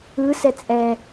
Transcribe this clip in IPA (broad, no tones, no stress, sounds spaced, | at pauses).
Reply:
ɯ s ɛ t͡sʼ ɛ